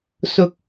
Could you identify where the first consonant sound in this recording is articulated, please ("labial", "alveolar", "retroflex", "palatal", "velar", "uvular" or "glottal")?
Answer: alveolar